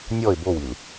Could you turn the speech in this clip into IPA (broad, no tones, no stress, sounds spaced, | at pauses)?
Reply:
nʲ ɔ ɪ̯ b o w i l